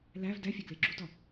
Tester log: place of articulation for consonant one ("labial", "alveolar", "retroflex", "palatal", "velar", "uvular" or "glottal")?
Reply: alveolar